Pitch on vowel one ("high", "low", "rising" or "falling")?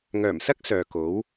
low